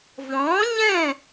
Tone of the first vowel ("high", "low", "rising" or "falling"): rising